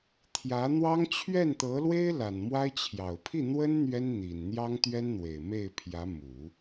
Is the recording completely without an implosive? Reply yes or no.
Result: yes